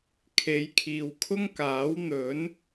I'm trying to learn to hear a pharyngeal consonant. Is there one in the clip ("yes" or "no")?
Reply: no